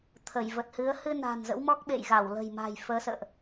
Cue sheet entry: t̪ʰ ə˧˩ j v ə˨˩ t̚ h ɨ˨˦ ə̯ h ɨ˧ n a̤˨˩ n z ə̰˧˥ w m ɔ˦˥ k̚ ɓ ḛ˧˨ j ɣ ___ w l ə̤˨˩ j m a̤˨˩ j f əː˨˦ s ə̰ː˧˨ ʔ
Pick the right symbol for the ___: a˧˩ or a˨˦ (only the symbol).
a˧˩